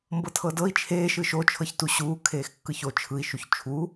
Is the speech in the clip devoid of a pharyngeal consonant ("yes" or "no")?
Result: yes